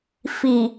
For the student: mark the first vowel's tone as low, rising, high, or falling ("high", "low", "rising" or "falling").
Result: low